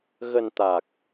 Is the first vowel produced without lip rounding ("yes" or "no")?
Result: yes